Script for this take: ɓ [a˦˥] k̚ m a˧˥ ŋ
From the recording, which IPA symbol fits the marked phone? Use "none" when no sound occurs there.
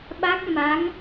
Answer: a˦˥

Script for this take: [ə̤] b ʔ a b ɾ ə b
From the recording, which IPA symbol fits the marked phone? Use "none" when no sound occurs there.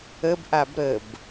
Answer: ə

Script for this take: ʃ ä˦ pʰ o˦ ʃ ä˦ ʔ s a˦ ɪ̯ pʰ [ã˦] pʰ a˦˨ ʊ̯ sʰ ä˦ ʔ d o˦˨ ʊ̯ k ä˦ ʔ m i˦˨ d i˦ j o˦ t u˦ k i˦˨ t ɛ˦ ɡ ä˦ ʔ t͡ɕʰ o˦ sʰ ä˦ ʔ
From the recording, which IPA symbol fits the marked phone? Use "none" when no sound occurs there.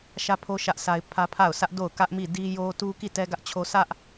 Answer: ä˦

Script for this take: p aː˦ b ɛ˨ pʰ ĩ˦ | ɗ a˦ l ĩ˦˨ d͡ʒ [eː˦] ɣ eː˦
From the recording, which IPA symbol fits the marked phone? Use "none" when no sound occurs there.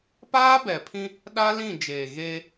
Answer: eː˨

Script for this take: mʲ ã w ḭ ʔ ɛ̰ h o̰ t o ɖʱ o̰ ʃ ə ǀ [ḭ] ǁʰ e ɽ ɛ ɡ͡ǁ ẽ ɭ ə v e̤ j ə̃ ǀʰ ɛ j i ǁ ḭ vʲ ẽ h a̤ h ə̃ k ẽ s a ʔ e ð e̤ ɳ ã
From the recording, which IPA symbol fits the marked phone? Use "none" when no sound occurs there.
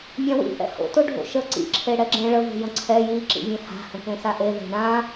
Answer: ḭ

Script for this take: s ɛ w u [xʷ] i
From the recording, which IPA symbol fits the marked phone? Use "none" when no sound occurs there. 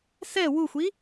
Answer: xʷ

